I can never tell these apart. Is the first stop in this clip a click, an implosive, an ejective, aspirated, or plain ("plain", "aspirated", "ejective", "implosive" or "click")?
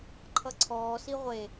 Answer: click